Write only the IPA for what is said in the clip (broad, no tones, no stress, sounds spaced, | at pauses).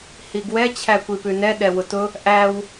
h i ɡ w ɛ t͡ɕʰ æ kʷ i p ʉ n ɛ ɗ ɛ w ʊ t ʊ | ʔ æ w